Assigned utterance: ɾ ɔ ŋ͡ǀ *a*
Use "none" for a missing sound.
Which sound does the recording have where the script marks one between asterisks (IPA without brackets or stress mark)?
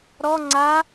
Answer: a